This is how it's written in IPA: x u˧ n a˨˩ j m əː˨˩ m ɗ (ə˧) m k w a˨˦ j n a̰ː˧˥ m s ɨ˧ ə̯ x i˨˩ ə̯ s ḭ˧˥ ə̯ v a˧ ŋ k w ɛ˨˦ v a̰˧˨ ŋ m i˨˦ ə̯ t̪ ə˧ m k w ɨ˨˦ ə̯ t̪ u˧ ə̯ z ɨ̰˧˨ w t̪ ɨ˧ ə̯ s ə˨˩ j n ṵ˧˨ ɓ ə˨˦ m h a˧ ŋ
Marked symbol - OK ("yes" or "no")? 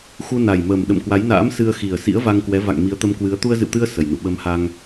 no